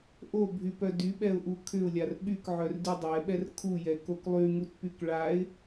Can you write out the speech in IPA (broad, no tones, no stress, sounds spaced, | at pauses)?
ʔ o bʱ y p œ d y ɓ ɛ ʊ̯ ʔ u kʰ ʏ ʊ̯ lʲ a r ɓ y k ʕ œ r d y dˤ ɛ ɓ ɛ r kʰ u j ɛ k o k lˠ y ŋ u t p y k ɭ a ɪ̯